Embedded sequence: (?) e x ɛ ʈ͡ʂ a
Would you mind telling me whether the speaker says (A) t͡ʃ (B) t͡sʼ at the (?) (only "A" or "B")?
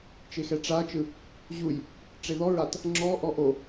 A